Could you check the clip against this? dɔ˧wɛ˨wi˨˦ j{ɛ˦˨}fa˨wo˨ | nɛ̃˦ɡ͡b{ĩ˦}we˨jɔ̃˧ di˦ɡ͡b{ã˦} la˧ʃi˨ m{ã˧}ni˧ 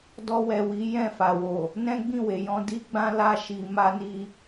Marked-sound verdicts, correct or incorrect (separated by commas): incorrect, incorrect, correct, incorrect